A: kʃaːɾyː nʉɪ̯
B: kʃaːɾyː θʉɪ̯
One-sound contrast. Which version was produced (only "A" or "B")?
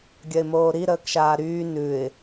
A